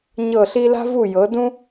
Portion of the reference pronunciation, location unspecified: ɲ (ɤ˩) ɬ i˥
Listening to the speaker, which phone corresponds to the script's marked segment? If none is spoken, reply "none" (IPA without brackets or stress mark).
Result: ɤ˥˩